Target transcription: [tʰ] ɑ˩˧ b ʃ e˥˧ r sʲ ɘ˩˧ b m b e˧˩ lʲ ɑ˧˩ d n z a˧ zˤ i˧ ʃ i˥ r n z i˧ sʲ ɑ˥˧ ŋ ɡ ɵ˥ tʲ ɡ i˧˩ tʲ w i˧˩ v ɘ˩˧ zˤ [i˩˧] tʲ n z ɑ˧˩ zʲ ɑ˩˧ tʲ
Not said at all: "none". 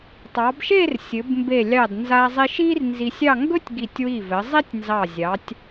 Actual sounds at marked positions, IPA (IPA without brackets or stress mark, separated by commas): tˤ, i˥